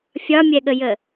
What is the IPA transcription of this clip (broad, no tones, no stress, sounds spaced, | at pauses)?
fʲ ɒ mʲ ɛ ɠ ə j ə